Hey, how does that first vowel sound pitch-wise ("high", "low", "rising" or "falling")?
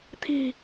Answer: low